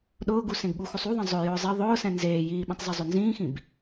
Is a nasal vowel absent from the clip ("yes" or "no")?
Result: no